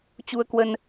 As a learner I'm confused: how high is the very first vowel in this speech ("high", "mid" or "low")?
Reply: high